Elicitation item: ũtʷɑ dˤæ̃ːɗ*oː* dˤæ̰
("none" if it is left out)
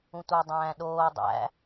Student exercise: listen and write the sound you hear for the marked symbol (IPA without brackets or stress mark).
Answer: oː